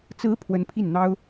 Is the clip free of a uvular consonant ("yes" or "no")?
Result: yes